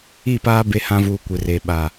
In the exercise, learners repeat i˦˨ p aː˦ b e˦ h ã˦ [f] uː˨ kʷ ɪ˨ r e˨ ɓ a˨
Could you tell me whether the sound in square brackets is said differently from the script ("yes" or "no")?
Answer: yes